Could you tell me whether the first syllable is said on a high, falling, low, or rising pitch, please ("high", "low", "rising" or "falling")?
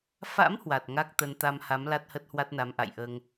rising